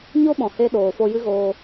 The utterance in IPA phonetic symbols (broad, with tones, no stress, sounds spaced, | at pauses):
ɲ o˦ ɓ ɔ̃˨ h e˧ ɗ oː˨ f o˧ j ɨ˦ ɣ oː˧